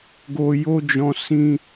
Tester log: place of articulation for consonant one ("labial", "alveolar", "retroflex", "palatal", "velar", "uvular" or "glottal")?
velar